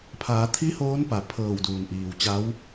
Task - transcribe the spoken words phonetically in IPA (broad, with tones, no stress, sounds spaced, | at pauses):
pʰ aː˩˧ t̪ʰ i˧˥ h oː˧˥ n p a˩ pʰ ɤː˧˩ w d uː˩ n ʔ iː˩ w t͡ɕ a˧˥ w